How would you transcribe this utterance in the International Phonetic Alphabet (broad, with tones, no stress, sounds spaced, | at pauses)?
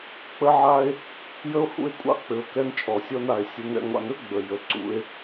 k͡p ə˦ ʕ a˦ e̯ | j ə˦ o̯ h ṵ˦ e̯ kʷʼ ɑ̰˦ k͡p ɘ˩ o̯ k ɛ˨ n t͡ʃʼ ɔ˩ sʲ ɔ˨ n a˩ e̯ sʲ ə˨ n ɛ̰˨ ŋʷ ɑ̰˨ n ɵ˥ ɡ͡b ə˩ j ə˩ ǀ ṵ˨ e̯